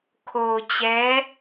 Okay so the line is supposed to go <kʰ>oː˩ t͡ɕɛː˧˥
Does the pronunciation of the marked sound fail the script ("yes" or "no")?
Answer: no